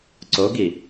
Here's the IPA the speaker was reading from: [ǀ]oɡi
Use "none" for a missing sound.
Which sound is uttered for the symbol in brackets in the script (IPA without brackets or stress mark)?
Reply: ǀ